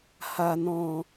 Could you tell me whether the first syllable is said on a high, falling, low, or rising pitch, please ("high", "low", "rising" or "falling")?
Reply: low